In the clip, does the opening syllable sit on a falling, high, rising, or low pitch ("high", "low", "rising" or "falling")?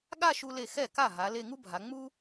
falling